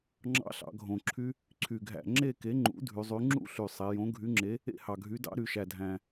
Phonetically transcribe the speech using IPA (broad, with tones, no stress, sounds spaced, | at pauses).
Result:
ŋ͡ǁ ɑ̰˦˥ ɬ ɑ̰˩˧ ɡʱ õ˨˩ ǁʰ y˦˥ | ǀʰ y˨˩ ɡʱ æ̰˨˩ ŋ͡ǁ e˥˧ k e˨˥ ŋ͡ǃ ṵ˨˥ dʱ y˩˧ zˤ y˨˥ ŋ͡ǁ ṵ˥˧ ɬ y˨˩ sˤ e˩˧ j õ˨˥ ɡʱ y˨˥ ŋ͡ǁ e˨˥ | ḛ˥˧ h ɑ˨˩ ɡʱ y˨˥ d ɑ̰˦˥ ɾ y˩˧ ʃ æ˨˩ dʱ æ̃˨˩